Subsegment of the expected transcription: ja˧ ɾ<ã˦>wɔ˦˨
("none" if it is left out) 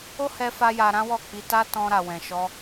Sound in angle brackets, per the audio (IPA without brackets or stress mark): ã˦